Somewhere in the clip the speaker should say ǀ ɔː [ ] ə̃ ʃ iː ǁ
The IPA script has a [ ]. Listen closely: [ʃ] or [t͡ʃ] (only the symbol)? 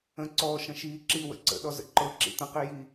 ʃ